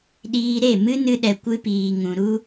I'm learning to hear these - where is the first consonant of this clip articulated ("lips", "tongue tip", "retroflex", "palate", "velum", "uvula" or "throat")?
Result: tongue tip